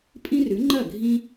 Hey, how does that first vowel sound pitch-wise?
high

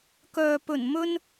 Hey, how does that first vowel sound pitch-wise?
low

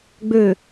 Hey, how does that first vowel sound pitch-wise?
low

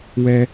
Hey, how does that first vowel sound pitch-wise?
high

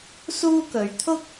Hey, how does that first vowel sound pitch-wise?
high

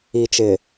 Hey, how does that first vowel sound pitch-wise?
low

